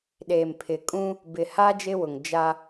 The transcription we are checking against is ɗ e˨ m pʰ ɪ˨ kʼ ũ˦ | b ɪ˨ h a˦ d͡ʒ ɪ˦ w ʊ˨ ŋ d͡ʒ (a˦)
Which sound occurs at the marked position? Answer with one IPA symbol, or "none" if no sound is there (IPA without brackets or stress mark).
a˦